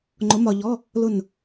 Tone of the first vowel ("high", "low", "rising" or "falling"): rising